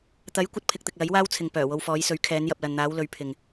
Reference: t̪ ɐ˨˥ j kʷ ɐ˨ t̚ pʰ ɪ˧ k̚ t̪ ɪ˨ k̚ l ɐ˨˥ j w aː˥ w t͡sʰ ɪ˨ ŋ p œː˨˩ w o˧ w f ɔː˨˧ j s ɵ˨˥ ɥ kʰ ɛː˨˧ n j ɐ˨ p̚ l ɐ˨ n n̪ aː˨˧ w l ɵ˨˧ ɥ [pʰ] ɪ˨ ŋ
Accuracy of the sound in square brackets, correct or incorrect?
correct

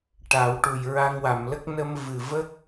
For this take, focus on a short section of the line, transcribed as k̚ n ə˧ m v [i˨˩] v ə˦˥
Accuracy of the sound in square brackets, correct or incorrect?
incorrect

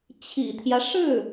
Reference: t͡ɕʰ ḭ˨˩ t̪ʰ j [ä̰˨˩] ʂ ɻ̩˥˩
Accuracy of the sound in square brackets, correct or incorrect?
incorrect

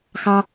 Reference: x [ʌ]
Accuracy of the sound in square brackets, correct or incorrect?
incorrect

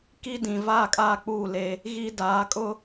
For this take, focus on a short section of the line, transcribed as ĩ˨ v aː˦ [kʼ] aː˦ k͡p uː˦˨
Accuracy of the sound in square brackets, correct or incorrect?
correct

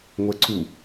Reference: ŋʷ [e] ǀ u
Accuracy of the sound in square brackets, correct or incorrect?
incorrect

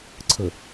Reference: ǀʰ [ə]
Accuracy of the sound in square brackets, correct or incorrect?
correct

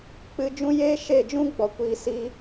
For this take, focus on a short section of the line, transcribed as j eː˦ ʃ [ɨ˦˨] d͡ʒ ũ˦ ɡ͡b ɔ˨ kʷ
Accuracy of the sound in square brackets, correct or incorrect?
incorrect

